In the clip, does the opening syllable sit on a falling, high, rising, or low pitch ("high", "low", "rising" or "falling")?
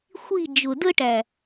falling